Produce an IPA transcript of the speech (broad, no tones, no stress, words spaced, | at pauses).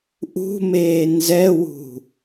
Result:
ʔṳmeː nzɛwṳ